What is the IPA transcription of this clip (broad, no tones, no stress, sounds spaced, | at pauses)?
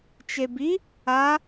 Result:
t͡ʃ e b i | a